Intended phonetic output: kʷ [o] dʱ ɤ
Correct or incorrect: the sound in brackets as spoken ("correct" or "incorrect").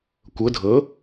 incorrect